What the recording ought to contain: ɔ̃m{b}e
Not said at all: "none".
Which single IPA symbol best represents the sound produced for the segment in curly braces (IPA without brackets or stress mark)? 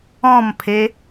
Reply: pʰ